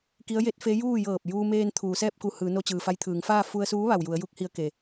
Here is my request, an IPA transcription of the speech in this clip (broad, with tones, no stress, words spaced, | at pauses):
ki˧˥ə̯je˧˥t̚fe˧˥ juː˥˨ jɤː˧˩p̚juː˧meː˧n t̪ʰuː˩˧sɛː˥˨p̚ku˧hɯː˩˧ no˧t͡ɕɯː˩fa˧jt̪ʰɯː˩˧ŋ faː˥˨ fu˧ə̯suː˧˥ʋa˩w ju˩˧ə̯ju˧k̚hi˧ə̯ ke˩